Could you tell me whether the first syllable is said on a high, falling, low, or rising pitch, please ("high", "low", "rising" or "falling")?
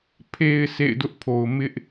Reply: low